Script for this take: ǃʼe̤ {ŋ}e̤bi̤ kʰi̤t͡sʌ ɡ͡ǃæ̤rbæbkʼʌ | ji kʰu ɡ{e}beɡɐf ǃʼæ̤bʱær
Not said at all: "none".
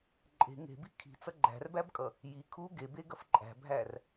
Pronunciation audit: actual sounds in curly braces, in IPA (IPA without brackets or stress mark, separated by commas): ŋ, e